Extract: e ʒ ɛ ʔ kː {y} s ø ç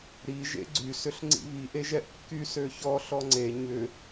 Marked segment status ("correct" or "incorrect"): correct